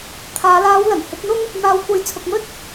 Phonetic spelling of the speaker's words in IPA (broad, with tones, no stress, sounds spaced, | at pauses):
t̪ʰ aː˨˧ l aː˨˧ w l ɐ˨˩ n h ɪ˨˥ k̚ n̪ ʊ˥ ŋ | n̪ aː˨ w kʷ ɐ˨˥ j t͡sʰ ʊ˨ k̚ m ɵ˥ t̚